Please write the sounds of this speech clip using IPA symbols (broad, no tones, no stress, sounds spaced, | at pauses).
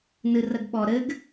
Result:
n ɨ r ə ɡ ɓ ɔ ɾ ɘ ɡ